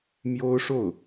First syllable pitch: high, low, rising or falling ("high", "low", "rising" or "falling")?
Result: high